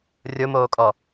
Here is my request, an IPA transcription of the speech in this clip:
rʲomoːkʼɔ

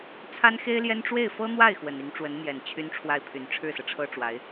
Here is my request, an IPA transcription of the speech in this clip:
t͡sʰa˥nxe˥ɪ̯ljɛ˥n ʈ͡ʂwe˥˩ɪ̯fɤ˥n̪wa˥˩ɪ̯ xwə˨˩ni˧˥ŋʈ͡ʂwə˧˥nn̪jɛ˨˩n t͡ɕʰy˥nʈ͡ʂʰwa˥˩ɪ̯pʰy˨˩n ʈ͡ʂʰɻ̩˥˩sɤ˩ʈ͡ʂʰɤ˥ ʈ͡ʂwa˧˥ɪ̯

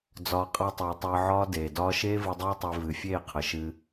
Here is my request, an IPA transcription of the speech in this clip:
d͡zɒː˧qʼa˦tˤɨː˨tˤɨː˧ ʕɒː˦deː˨dɒː˦ ʃeː˦vɨ˧dˤeː˦tˤe˧ vɨ˨fʲeː˦˨qʰə˨ʃɨ˧

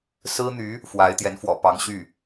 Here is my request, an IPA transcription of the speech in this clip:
sɹ̩˥n̪y˧˥ | fwa˧˥ɪ̯t̪jɛ˧˥n fwɔ̰˨˩ pɑ˧˥ŋ ɕy˥˩

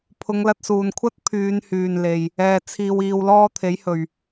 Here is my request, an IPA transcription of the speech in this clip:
pʰʊ˨˧ŋlɐ˧t̚suː˨nkʷʰɐ˥t̚ pʰyː˨˧nhyː˨nle˨j | ɛː˧ t͡sʰiː˧wiː˧wlɔː˥ t̪ʰe˨˥jhɵ˨ɥ

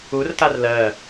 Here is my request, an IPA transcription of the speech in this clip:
urtar lɜ

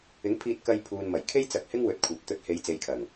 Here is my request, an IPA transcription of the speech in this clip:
ɪ˨˥ŋpʰiː˧t̚kɐ˧j pʰuː˨nmɐ˨˩jkʰe˥j t͡sɐ˧k̚hɪ˥ŋwɵ˨˥t̚kʷʰɐ˨p̚ t̪ɵ˨˥t̚he˨˧j t͡se˨jkʰɐ˨˩ŋ

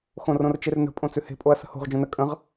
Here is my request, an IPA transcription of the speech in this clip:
xõrõrt͡ʃernə̤ pʼõt͡sʉhe̤ pʼoɐ̯sə̤ho̤ʁ d͡ʒõnə kʼə̃ʁ

